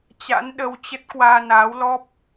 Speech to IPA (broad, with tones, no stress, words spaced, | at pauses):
t͡ɕa̰˧˥nɗə˧wt͡ɕə˦˥t̚ kwaː˧naː˨˦wlɔ˦˥p̚